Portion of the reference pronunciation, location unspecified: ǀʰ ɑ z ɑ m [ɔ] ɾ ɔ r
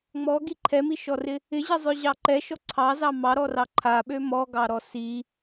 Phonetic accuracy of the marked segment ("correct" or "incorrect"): incorrect